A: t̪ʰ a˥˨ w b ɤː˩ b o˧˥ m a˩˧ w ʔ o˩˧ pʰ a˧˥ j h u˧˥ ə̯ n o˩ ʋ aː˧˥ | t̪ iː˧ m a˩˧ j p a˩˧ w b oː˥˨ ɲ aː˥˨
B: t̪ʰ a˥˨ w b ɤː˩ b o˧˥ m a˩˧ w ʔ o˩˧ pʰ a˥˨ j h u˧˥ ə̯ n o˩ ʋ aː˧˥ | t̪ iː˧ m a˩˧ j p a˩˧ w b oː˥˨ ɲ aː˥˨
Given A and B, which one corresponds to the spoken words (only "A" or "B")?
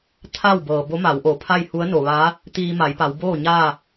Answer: B